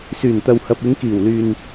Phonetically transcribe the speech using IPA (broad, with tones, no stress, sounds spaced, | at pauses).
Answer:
s yː˨˩ n t̪ ɐ˨ w h ɐ˨ p̚ ɪ˨˧ ŋ k iː˨˩ w l yː˨ n